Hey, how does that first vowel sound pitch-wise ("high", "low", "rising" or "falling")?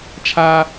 high